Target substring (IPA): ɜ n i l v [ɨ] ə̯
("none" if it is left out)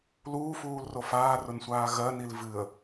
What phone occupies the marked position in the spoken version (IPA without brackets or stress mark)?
ɨ